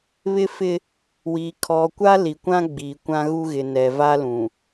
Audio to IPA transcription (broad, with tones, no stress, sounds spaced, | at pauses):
β ɪ˦ f ɪ˦ | w i˨ kʰ ɔ˨ kʷ a˦ l i˨ kʷ ã˦ ɡ͡b iː˨ kʷ ã˦ ɣ u˦ ɣ ɪ˨ n ɛ˨ v a˦ l ũ˨